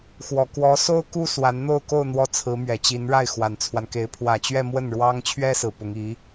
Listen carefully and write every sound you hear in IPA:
x w ɔ˨˩ k w ɔ˧˥ s o˥ ʊ̯ k u˥ s w a˧˥ n n̪ o˥˧ ʊ̯ k o˥˧ ʊ̯ n̪ w ɔ˥˩ t͡sʰ ɹ̩˧˥ m ɥ ɛ˨˩ t͡ɕ i˧˥ n ɻ a˥˩ ɪ̯ x w a˨˩ n t͡sʰ w a˦ n k e˧˥ ɪ̯ pʰ w ä˨˩ t͡ɕ ɥ ɛ˥˧ m w ə˥˩ n ɻ w ɑ˥ ŋ t͡ɕʰ ɥ ɛ˥ s ɹ̩˨˩ p ʊ˧˥ ŋ i˧˥

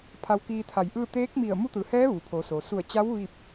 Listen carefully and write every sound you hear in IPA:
pʰ a˧ w k iː˧ t̪ʰ a˧˩ j ʔ ɯː˥˨ t̪ eː˧˥ k̚ m i˧˩ ə̯ m u˧˥ t̪ ɯː˩ h ɛː˧˥ ʋ uː˩ pʰ oː˩˧ s oː˩ s u˧˩ ə̯ t͡ɕ a˧˥ w ʋ iː˥˨ p̚

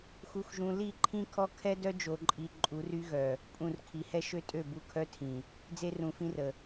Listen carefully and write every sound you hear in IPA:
x u˨ x ʒ ũ˨ l i˦˨ ǃʰ ĩ˦ kʰ ɔ˦ kʰ ɛ˦ d œ˦ d͡ʒ o˨ ǃʼ i˨ ǃʼ u˨˦ r y˦ ɣ œ˨ | pʼ ũ˨ r kʰ i˨ h ɛ˦ ʃ ø˦ tʼ ø˦˨ b u˦˨ kʰ œ˦ tʰ ĩ˨ | d͡z e˦ r ũ˨ f ĩ˦ r ə˨

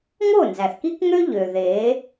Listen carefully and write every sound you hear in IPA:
ŋ o˦˨ n z æ˨ θ k i˦ k ŋ ø˦ ʎ ø˨ ð e˨˦

